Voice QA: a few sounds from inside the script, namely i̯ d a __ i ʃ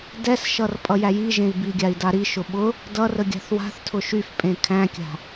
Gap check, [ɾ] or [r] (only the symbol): ɾ